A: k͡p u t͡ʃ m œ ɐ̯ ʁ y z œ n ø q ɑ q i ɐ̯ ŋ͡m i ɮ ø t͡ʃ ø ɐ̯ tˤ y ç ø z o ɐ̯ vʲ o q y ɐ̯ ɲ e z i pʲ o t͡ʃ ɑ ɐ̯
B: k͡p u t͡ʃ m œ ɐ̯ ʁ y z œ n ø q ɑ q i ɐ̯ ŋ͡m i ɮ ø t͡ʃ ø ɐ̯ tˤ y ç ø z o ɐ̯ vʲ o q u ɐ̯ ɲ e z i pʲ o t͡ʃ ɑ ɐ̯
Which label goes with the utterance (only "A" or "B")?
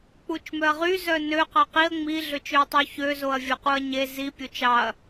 B